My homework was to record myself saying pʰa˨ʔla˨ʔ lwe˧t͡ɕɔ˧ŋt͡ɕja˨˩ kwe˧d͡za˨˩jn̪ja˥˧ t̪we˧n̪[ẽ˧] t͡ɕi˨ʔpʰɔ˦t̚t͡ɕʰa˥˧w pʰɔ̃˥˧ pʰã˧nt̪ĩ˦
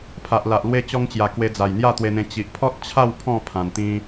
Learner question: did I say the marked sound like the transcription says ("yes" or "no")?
yes